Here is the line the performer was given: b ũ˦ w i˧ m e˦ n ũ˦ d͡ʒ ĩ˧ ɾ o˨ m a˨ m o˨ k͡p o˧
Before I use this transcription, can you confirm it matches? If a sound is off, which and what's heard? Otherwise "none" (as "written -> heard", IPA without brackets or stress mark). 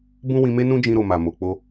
i˧ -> ĩ˧